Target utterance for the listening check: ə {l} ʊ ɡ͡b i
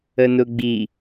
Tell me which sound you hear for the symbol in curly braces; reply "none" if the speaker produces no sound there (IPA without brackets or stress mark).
n